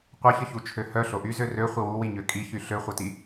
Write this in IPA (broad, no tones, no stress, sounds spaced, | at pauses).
qʷ ɐ ç ə ç u t͡ʃʰ ø h œ ɬ o ʔ y z ø r ø χʷ ɪ w u w i ɲ ø kʼ i ç y ɬ ø χʷ ɐ t i